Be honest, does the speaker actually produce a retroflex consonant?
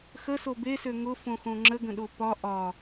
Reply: no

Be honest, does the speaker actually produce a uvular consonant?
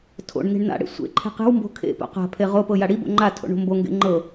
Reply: yes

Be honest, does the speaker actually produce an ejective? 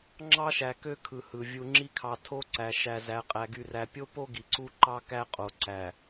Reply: yes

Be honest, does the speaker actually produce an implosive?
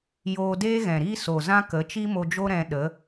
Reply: yes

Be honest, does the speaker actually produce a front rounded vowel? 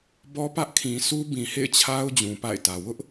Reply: no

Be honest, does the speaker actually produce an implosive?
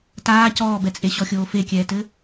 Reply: no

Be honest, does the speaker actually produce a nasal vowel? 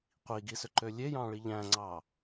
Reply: yes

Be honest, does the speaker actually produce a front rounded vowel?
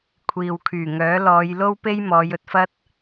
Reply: yes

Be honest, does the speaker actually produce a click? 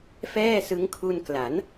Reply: no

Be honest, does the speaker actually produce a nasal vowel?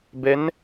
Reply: no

